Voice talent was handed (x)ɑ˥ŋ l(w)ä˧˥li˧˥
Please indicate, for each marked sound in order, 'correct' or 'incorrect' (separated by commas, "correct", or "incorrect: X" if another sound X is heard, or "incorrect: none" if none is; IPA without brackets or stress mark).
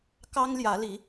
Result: incorrect: k, incorrect: j